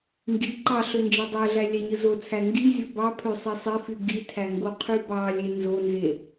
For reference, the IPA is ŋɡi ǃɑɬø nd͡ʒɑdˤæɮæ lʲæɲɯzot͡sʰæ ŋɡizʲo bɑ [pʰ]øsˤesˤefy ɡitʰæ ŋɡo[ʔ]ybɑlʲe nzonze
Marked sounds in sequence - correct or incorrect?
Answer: correct, incorrect: qʰ

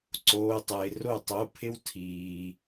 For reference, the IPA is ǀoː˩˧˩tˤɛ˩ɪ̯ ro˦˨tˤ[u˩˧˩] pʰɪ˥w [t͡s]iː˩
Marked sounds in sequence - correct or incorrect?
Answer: incorrect: o˩˧˩, incorrect: tʰ

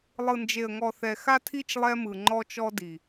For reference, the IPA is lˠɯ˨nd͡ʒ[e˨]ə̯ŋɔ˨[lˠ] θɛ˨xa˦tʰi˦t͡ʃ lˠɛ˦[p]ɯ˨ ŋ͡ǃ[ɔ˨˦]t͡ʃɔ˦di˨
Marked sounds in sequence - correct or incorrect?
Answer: correct, incorrect: none, incorrect: m, incorrect: ɔ˦

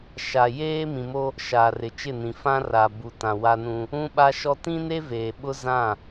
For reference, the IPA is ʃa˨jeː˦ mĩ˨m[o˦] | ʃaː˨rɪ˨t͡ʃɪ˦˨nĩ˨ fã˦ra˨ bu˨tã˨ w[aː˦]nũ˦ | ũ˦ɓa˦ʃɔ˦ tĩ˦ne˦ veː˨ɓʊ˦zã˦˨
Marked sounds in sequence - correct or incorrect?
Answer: correct, incorrect: a˦

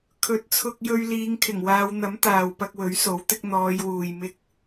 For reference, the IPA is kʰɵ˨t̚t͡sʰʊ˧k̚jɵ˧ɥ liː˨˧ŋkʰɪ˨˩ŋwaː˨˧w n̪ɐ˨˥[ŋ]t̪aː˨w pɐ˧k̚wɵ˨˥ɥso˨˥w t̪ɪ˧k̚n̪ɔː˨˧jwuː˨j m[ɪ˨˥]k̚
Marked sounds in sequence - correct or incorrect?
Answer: incorrect: m, incorrect: ɪ˧

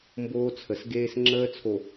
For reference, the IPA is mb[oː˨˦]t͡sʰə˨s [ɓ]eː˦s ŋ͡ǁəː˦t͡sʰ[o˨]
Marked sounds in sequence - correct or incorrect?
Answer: incorrect: oː˦, incorrect: ɡ, correct

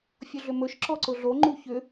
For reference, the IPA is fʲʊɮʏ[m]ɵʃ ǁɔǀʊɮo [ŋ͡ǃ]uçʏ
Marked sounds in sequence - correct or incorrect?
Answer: correct, correct

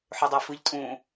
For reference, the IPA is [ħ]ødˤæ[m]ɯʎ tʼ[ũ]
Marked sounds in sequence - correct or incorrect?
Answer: correct, incorrect: f, correct

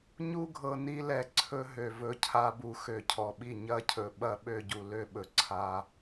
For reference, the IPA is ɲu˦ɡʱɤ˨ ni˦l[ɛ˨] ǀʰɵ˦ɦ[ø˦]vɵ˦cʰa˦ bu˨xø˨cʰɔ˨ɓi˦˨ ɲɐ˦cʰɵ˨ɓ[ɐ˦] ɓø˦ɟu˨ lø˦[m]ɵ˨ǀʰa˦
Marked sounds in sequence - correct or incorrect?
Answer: correct, incorrect: ø˨, correct, incorrect: ɓ

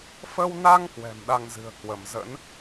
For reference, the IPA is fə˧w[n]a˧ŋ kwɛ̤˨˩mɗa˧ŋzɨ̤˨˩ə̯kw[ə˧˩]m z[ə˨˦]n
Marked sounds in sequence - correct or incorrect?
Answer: correct, correct, incorrect: ə̰˧˥

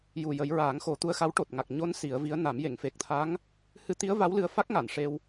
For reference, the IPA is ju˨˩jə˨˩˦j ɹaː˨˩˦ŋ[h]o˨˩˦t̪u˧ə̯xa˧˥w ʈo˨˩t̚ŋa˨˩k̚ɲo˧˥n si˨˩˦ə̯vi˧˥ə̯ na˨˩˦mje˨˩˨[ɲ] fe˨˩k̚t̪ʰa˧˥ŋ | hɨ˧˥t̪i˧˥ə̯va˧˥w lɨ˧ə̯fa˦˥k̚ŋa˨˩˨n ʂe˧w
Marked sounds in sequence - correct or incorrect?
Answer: incorrect: x, incorrect: ŋ

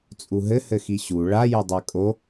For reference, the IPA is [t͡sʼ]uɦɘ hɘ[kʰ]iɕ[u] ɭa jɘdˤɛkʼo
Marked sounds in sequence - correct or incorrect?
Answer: correct, incorrect: x, correct

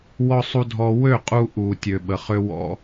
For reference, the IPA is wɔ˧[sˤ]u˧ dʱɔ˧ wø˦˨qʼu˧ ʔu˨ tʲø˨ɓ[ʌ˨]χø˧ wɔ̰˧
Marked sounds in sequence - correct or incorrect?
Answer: correct, incorrect: ə˨

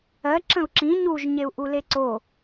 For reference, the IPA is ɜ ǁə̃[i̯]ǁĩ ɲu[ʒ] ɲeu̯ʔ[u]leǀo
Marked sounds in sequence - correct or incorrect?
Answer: incorrect: u̯, correct, correct

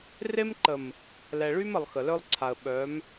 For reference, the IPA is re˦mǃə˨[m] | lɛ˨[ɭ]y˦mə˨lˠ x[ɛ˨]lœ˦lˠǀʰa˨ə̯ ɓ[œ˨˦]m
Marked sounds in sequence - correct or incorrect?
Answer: correct, correct, incorrect: ə˨, correct

